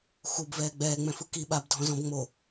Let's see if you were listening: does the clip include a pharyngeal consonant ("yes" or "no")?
no